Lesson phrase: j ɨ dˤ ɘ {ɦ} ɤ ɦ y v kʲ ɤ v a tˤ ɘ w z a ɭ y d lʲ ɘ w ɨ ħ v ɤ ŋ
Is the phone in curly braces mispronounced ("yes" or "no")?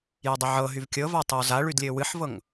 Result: yes